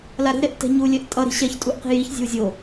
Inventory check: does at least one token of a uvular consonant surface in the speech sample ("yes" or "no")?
yes